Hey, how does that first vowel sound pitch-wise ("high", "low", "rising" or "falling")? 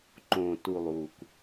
low